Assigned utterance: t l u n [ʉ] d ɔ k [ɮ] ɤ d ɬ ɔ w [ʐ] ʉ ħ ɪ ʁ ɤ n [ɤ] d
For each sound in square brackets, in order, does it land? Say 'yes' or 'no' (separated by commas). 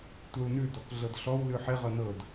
yes, yes, no, yes